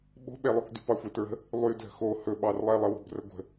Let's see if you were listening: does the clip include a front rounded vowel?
yes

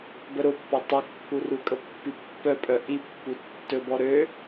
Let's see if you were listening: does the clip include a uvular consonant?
no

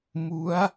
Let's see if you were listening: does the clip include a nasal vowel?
no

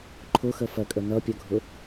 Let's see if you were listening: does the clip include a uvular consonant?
no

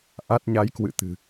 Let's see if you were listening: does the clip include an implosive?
no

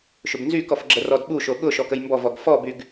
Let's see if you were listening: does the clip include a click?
yes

